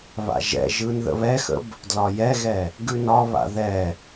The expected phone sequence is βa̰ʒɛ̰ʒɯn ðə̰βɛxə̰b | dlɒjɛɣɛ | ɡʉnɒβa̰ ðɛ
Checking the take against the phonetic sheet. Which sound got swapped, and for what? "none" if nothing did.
none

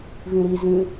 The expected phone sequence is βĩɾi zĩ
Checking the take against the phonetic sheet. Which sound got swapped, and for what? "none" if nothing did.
β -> v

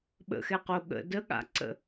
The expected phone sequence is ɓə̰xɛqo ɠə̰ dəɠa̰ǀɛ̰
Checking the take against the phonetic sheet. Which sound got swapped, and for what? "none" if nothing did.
ɛ̰ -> ə̰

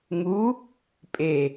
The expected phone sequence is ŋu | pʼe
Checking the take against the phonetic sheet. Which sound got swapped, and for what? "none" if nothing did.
none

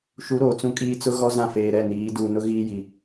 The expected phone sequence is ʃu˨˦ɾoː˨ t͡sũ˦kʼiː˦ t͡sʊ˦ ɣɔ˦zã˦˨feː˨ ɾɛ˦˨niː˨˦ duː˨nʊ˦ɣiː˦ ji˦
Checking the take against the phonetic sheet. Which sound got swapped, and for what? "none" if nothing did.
none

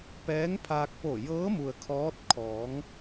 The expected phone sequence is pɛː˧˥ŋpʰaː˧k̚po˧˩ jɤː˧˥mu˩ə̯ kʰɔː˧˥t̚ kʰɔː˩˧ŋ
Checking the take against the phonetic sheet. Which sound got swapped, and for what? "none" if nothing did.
none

